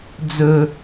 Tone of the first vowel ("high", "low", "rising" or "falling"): high